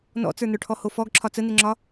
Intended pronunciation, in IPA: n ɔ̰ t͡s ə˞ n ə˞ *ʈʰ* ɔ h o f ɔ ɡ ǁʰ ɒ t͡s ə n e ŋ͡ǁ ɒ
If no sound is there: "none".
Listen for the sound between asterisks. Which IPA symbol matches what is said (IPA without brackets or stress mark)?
ʈʰ